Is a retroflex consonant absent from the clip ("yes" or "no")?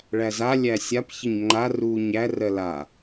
no